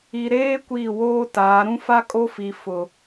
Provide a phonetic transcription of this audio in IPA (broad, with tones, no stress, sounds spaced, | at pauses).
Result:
i˨ ɾ eː˦ kʷ iː˦˨ w oː˦ t aː˨˦ ɾ ũ˦ f a˦ kʼ o˦ f i˨ f ʊ˨